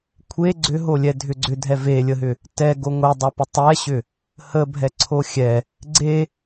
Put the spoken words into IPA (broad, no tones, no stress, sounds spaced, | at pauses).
kʷʰ e ɡ͡ǀ ʏ ɦ o lʲ ɛ dʱ ʏ ɡ͡ǀ ʏ dʱ ɛ v e lʲ ə ɦ ʏ | t ɛ ɡ o ŋʷ e dˤ o p ʏ tˤ ɛ ɕ ʏ | h ə bʱ ɛ ǀʰ o xʲ ɛ | ɡ͡ǀ e